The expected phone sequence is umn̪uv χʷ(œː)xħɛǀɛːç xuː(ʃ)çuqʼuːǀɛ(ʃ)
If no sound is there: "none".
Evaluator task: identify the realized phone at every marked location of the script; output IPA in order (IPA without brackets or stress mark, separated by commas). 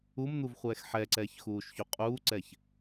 ɛː, ʃ, ç